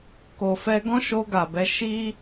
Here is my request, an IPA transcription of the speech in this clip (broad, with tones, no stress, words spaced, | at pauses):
ko˨fɛ˧ɡɔ̃˦ ʃo˧ɡa˨bɛ˧ ʃi˦